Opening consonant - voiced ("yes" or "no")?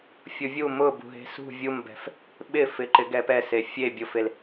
no